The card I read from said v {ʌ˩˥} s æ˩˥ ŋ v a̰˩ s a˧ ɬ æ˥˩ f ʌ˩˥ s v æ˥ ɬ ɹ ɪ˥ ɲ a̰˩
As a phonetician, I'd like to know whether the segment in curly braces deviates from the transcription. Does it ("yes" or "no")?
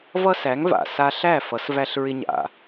yes